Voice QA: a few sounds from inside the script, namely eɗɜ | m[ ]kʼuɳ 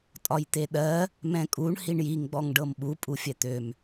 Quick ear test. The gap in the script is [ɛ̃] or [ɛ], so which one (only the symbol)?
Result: ɛ̃